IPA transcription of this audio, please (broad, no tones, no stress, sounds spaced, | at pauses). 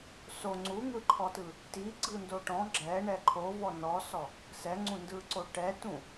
s o ŋ͡ǀ u ŋ ɯ ǃʰ ɔ t ɯ | t i ɡ͡ǀ ɯ n d o ʈ ɔ̃ ɡ͡ǁ ɛ ɳ ɛ ǃʰ o v ɔ n ɔ s ɔ | s ɛ ŋ͡ǀ ũ n d ɯ ǀ o ʈ ɛ t ũ